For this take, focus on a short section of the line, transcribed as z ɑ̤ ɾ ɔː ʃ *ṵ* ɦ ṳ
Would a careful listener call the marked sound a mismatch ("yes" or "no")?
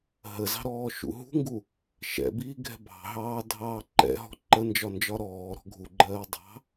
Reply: no